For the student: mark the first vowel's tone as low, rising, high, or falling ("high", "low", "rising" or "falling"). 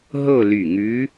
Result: falling